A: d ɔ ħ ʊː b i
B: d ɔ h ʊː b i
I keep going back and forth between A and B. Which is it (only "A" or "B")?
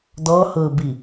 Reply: B